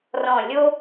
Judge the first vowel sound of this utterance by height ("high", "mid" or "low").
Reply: mid